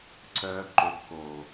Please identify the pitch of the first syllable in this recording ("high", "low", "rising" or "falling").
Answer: high